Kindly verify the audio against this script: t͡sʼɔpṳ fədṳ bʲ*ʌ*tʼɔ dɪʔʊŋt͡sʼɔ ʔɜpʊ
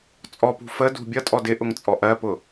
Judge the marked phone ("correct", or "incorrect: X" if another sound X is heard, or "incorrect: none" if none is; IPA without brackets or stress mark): correct